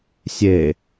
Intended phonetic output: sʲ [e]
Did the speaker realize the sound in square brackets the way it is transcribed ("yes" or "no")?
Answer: yes